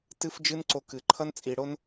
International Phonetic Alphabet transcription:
tɨ˦fd͡ʒɨ˦nǀo˧kɨ˨ ǃʰʌ˦nt͡sʼi˨ɽo˦n

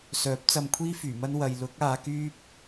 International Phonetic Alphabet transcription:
sœː˨˥p̚t͡sɐ˧mkʷʰiː˥ fyː˨˩mɐ˥n wɐ˨j lʊ˨˥k̚ aː˨˧kyː˥p̚

